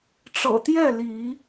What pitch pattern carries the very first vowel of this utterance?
low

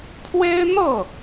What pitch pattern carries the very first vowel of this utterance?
high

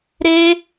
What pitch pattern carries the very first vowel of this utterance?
high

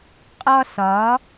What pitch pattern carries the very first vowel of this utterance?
high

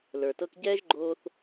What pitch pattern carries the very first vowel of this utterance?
low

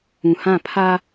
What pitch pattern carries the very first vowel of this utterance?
low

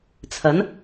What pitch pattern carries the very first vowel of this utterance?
rising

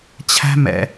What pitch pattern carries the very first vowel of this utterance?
high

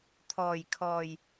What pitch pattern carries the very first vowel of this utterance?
low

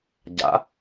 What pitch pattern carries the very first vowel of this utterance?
rising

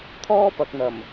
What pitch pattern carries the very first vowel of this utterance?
high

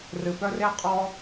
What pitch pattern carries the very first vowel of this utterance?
low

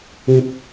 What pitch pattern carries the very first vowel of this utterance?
high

